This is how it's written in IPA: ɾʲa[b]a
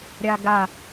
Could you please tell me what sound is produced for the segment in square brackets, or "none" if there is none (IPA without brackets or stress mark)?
ɡ